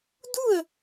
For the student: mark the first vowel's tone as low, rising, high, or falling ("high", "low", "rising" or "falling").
falling